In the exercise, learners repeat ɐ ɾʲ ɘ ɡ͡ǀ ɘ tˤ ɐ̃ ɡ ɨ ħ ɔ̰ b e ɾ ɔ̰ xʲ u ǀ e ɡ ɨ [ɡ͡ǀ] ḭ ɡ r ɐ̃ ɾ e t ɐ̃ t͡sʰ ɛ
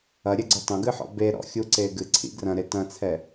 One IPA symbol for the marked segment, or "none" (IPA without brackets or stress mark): ǀʰ